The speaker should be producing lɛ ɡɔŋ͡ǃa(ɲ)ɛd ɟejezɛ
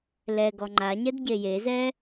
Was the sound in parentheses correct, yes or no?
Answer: yes